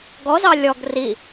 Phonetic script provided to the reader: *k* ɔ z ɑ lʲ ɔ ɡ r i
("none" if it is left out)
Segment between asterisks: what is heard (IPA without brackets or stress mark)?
ɡ